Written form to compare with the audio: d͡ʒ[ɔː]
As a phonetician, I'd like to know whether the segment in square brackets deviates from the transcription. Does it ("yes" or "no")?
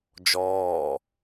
no